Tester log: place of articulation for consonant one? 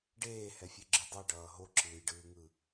retroflex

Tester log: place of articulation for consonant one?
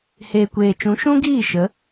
glottal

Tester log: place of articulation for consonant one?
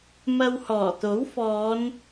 labial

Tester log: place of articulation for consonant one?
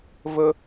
labial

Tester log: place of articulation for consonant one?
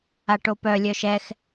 retroflex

